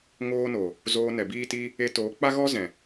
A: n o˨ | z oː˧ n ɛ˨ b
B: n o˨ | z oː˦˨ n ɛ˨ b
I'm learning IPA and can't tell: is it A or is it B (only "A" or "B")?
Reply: A